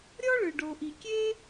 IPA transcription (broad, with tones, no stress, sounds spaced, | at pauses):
ɾʲ ɔ˥ ɭ ɯ˩ ɖ o˩ ʔ i˩ kʲ e˥